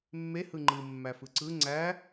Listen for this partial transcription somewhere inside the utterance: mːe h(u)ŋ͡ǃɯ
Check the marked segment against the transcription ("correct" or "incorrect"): incorrect